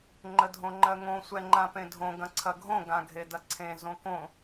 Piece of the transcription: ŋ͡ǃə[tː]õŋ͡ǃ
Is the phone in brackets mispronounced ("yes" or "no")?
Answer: yes